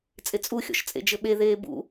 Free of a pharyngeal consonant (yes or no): yes